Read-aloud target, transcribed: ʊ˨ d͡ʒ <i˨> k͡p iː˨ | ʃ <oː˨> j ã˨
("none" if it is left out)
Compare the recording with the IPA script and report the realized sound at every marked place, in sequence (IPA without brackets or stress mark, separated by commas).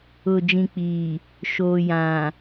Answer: ĩ˨, oː˨